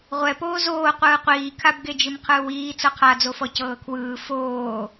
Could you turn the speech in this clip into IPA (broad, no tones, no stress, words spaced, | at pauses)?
ʁʷɛpoː zoːqʷɯː qʷiːkʰabɡed͡ʒɯm qʰɯːwiː t͡sɤqʰad͡zofɔ cɤːkʰwɯː foː